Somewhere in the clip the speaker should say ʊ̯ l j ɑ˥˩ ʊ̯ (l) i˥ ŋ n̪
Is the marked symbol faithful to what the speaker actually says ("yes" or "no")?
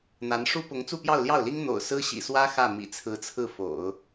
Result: yes